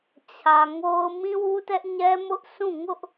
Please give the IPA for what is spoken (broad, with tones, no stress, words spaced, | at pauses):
t͡ɕʰä˨ŋo˦ʊ̯ mĩ˦wu˦tɛ˦ʔ ɲɛ˦mʊ˦ʔsʰũ˦˨ ŋʊ˦ʔ